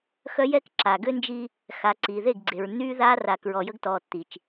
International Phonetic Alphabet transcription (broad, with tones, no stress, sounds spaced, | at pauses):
x œ˦ j ɛ˦ k ǁ a˨ ɡ ø˦ n d͡ʒ i˦ | x a˨ ǀ iː˨ ð e˦˨ ɡ ɡ͡ǀ e˨ ɹ nː yː˦ ð aː˦ r a˨ k ɹ ɔ˨ j ə˦ ɡ t ɔː˨ tː i˨ t͡ʃ